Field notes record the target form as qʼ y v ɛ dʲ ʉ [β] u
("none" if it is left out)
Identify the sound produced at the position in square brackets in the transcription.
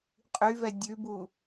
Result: b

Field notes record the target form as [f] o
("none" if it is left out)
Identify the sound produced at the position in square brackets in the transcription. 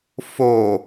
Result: f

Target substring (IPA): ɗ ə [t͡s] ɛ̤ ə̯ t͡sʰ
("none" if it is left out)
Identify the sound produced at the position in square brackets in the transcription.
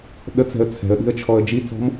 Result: t͡s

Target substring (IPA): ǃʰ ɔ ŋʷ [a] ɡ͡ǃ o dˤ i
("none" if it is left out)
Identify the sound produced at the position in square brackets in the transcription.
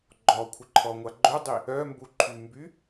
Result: a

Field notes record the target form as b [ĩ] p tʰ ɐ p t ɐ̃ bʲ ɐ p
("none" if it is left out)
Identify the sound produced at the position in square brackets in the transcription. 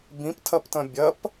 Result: ĩ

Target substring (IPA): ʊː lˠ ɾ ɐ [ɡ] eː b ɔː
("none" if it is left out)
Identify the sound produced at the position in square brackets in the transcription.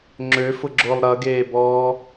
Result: ɡ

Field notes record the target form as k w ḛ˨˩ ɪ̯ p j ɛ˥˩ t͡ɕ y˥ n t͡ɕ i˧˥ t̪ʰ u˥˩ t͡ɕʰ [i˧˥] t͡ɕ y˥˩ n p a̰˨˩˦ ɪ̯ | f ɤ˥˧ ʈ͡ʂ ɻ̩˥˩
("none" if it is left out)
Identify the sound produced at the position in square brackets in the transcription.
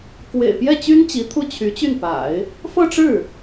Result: y˧˥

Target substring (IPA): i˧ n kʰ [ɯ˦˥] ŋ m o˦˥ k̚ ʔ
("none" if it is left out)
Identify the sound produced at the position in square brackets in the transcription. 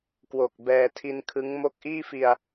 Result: ɯ˦˥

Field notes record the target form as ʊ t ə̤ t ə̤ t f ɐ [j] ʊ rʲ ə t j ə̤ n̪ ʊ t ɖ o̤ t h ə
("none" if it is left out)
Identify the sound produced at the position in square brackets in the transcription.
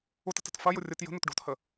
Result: j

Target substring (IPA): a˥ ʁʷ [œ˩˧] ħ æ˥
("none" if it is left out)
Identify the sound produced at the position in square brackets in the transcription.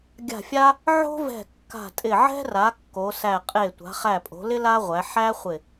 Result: æ˩˧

